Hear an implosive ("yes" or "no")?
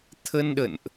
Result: yes